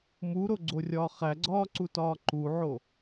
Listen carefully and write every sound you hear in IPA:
m u ɾ o ɡ͡ǀ o rʲ ɒː χ æ ɡ͡ǀ ɒː ǀ u t ɒː ǃ u ʕ o

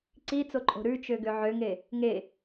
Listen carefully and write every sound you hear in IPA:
ǀ i t͡s o ǃʼ o̤ ɾ ʉ t͡ʃ ø ɡ ø ʕ ø ŋ e | ŋ e

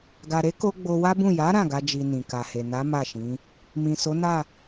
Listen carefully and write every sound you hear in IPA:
ɡ a˨ ɾ e˨˦ k o˧ ɡ͡b o˧ w a˦ b ũ˦˨ j a˨˦ ɾ ã˦˨ ɡ a˧ d͡ʒ i˨ n ĩ˨ k a˨ h e˨ n a˨˦ m a˦˨ ʃ ĩ˨˦ | m ĩ˨ s o˨˦ n a˦˨

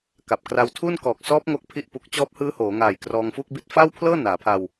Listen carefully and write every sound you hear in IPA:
k a˨˩ p̚ k r a˧ w tʰ u˥˩ n k ɔː˨˩ k̚ s ɔː˦˥ p̚ ŋ o˥˩ k̚ pʰ i˥˩ ʔ p u˦˥ k̚ t͡ɕ ɔː˦˥ p̚ h ɯː˦˥ h oː˩˦ ŋ aː˨˩ j k r ɔː˧ ŋ f u˥˩ k̚ b i˦˥ t̚ f a˥˩ w pʰ l ɤː˥˩ n aː˩˦ pʰ a˧ w

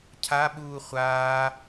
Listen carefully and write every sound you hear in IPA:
cʰ a ɓ uː χʷ aː

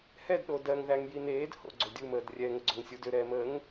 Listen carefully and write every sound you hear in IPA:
h ɛ d ɗ o d ɜ ŋ ð æ ŋ j i n eː d h o̰ ɡ͡ǀ o dʲ u m əː d rʲ ɛ ŋ ə ɡ͡ǀ o ŋ sʲ u d ʏ ɾ ɛː m əː ŋ

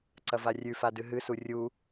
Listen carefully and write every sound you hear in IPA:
ǀ ɐ v a rʲ ʉ f a d ɨ ɦ ɨ s u rʲ u

